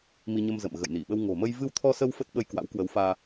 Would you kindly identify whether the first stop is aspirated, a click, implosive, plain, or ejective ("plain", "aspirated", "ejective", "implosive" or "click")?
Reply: implosive